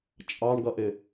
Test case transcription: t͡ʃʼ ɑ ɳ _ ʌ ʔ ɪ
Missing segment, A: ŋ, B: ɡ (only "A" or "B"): B